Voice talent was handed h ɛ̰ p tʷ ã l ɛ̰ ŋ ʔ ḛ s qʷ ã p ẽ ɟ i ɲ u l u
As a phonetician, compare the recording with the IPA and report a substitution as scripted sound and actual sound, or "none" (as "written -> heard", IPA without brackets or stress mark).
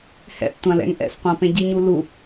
ḛ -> ɛ̰